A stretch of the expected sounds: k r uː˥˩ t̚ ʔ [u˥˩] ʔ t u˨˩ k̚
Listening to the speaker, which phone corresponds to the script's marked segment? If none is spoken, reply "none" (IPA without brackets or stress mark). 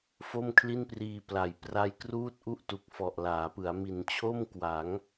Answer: u˥˩